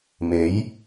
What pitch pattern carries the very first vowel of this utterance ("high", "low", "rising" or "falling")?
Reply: rising